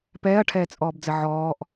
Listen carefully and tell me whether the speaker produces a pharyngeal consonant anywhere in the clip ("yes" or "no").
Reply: yes